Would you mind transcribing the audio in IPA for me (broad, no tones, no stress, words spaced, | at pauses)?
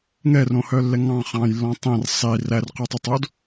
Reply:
ŋɛrõhœlːɛ ŋɑ̃ χɑ̃jlːɔ̃ tˤẽr sˤi rærqʉtˤʉtˤod